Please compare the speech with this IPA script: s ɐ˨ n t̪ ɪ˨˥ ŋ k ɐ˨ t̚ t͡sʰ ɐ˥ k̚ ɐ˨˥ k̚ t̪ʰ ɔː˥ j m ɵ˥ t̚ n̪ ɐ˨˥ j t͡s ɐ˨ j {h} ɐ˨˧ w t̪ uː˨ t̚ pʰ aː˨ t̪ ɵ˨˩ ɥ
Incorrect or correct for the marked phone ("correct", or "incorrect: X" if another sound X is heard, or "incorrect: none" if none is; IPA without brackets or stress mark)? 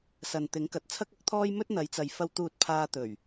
incorrect: f